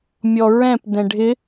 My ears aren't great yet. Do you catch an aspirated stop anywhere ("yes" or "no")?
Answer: no